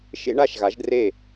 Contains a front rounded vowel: no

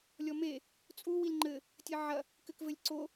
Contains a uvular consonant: no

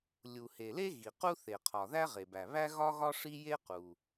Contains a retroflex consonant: yes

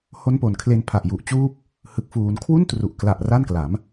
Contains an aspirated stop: yes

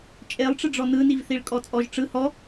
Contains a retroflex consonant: yes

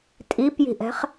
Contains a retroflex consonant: no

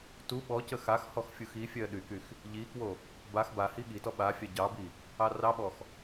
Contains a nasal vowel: no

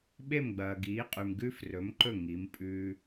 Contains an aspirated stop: no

